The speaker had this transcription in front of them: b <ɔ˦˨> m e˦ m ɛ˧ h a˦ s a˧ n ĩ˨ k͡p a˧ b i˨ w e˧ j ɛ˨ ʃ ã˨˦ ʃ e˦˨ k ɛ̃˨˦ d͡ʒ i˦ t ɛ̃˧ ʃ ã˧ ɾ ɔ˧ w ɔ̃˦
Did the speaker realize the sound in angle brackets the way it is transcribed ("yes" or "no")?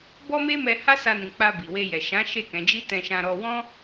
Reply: no